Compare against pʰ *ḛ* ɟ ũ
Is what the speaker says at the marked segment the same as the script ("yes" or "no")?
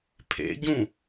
yes